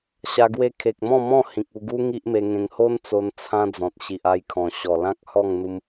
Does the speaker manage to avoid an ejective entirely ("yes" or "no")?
yes